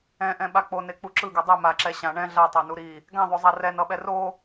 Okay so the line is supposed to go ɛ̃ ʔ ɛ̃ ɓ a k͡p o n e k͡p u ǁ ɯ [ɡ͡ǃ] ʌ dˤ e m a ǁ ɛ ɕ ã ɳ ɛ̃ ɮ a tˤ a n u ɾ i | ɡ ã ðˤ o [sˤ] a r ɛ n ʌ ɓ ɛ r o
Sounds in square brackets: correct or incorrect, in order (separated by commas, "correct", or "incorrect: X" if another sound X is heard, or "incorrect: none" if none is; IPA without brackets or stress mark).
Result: incorrect: ɡ, incorrect: zˤ